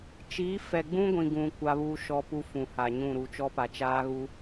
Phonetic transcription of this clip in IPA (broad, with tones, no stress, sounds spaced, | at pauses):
t͡ʃ iː˨˦ f ɛ˨ ɡ͡b ũ˦ ɡʷ ĩ˨ ɡ ũ˨ kʷ a˦ β uː˦ ʃ ɔ˦ p u˦ f ũ˨ h a˨ ɲ ũ˦˨ ɾ u˨ t͡ʃ ɔ˦ p a˨ t͡ʃ aː˦ ɣ u˦